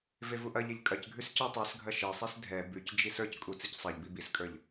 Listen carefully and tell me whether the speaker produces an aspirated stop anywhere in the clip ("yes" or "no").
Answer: no